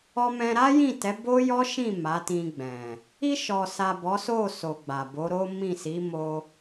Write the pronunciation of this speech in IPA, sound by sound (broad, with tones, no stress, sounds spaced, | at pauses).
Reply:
ɔ˧ m ɛ̃˧ ɾ a˦ j ĩ˦˨ t ɛ˨˦ b o˦ j ɔ˦ ʃ ĩ˦˨ m a˨˦ t ĩ˧ ɡ͡b ɛ̃˨ | i˧ ʃ ɔ˨ s a˨ b ɔ˨˦ s o˦˨ s o˨ ɡ͡b a˨ b o˨˦ ɾ o˦ m ĩ˦˨ s i˨˦ m o˧